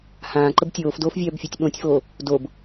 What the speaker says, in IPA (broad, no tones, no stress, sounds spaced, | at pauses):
h ãː ǃ ə b tʲ oː f d oː f vʲ œː b fʲ o tʲ ɓ õ tʲ f oː | d o b